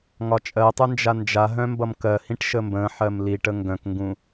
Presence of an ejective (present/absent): present